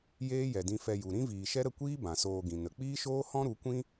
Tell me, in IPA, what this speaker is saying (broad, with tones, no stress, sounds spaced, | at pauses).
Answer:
j eː˦ j ɛ˨ d ĩ˧ f ɛ˧ j u˨ ɾ ĩ˦ v iː˨ ʃ ɛ˦ ɾ ə˦˨ kʷ iː˦ b ã˨ s oː˧ ɡ ĩ˨ n ə˨ k͡p iː˦ ʃ oː˦ h ɔ̃˦ ɾ u˨˦ kʷ ĩ˦